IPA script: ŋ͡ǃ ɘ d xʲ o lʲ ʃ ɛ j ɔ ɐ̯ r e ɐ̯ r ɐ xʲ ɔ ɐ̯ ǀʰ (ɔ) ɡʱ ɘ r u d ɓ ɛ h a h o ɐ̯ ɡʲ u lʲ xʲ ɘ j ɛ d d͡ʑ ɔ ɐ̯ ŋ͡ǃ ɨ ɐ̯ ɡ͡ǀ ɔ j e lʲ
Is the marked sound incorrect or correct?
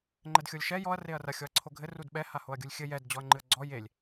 incorrect: o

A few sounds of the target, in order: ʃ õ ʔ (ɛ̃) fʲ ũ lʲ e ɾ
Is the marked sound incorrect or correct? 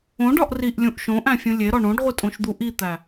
incorrect: æ̃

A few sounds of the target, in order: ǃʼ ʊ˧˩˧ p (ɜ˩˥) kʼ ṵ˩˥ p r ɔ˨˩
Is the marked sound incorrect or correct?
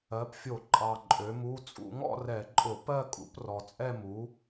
incorrect: ɜ˥˧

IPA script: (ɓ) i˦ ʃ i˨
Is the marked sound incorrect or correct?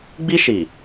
incorrect: ɡ͡b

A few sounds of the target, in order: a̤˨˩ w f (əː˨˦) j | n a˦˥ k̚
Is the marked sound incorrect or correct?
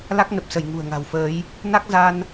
correct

